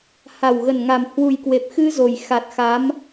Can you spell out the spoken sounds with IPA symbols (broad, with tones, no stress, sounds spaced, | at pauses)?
h a˨˩ w ɣ ə˨˩ n ŋ a˨˩ m h w u˨˩ j k w e˨˩ p̚ x ɨ˧ z o˨˩ j x a˨˩ t̚ x a˨˦ m